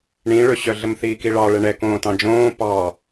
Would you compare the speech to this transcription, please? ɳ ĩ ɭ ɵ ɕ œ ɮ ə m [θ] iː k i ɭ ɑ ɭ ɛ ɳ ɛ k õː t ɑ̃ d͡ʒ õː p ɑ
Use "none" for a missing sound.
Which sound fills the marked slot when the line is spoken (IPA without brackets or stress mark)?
θ